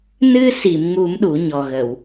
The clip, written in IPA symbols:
nɨ˧si˨˩˨m ŋu˨˩˦m ɗu˨˩˦ɲɔ˨˩ɣə˨˩˨w

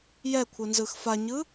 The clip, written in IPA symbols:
jɛkʷʰɯnzɯx faɲɯ

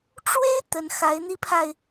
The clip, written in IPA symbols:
ʈ͡ʂwe˥ɪ̯ t̪ə˧˥nxa˧˥ɪ̯n̪i˥pʰa˨ɪ̯

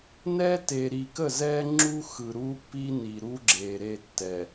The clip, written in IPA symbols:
nɛ˦ te˨ɾi˨kə˦˨zɛ˦ ŋ͡ǁu˦xɯ˨ ɾu˦pːi˦ni˨ɾu˦ ɡ͡ǁe˨ɾe˦˨tːɛ˨

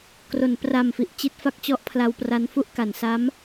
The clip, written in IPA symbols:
kro˩˦npra˨˩mfi˨˩ʔ t͡ɕi˦˥t̚ fa˦˥k̚t͡ɕɔ˦˥ʔ pʰla˧wpra˦˥nfu˥˩ʔka˩˦n sa˦˥m

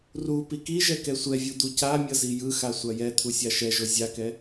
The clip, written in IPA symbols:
ru pikiʒɛ kɛsʷɛvʲu d̪ucamʲʌ zijɯxa sʷajɛt̪ʰu sʲaʃɛʒo zʲakɛ

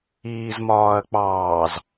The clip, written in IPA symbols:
iːzmɒːɐ̯k͡pɑːz

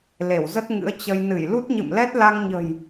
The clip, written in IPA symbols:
le˧˩wzə˦˥t̚ŋɨ̰˧˥ə̯ t͡ɕə˧j nɨ˧˩jlu˦˥t̚ɲɨ̰˧˨mlɛ˦˥t̚ la˧ŋɲə̤˨˩j

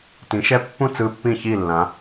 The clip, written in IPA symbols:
tĩ˨˦ʃɛ˦˥pːũ˥˨ t͡sɯ˦˥pːĩ˥˨çi˥˨lːã˨˦

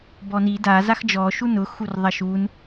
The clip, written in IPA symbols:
bɔni da zaxd͡ʒɔ ʃunʊ xurðˤɐʃun

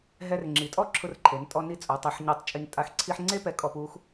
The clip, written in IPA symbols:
ɦɛ˧rŋ͡ǁi˩˧ tʼɔ˦˥ǁʰʊ˧rǃʰe˩˧ntʼɔ˧ ni˧ t͡sʼo˩˧tˤɛ˩˧ħɲɔ˧˩tˤ t͡ʃʼi˧ntʼa˧x ǀʰi˧ħŋ͡ǀe˦˥pɛ˨˥ kʼɔ˧pu˦˥x

